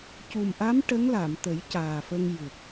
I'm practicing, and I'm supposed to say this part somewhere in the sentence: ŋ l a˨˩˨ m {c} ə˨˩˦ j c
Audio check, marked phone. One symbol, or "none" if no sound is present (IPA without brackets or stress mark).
t̪